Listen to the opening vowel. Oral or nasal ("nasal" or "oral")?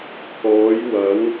oral